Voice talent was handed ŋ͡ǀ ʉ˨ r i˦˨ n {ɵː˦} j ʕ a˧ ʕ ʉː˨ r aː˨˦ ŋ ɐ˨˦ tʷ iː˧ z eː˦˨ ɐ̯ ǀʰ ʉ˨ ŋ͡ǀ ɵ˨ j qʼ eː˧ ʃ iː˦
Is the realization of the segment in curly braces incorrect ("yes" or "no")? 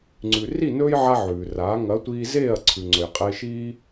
no